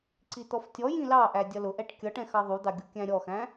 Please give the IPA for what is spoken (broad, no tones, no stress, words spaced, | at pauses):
ǀit̪ɔftʲɔjĩ lɑʔæ dʲʌlʊʔɛʈ kʲʌʈɛ̃ xɑðˤud̪ɑ ɡʲukʲæ̃ɾʲɔxæ̃